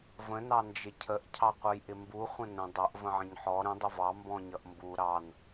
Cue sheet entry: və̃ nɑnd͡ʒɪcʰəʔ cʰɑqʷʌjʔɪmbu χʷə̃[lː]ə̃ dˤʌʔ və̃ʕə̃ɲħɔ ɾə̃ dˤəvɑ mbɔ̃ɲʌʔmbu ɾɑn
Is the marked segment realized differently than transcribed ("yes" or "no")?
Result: yes